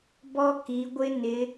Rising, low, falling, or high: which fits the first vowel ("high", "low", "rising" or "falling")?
high